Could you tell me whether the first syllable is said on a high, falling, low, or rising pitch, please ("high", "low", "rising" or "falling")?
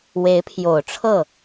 rising